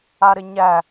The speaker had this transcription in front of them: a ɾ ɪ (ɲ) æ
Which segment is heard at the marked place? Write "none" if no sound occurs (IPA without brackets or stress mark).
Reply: ɲ